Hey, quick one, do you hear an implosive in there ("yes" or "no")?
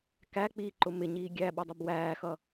yes